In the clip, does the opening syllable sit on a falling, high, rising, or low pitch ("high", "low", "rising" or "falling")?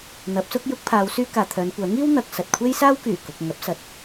rising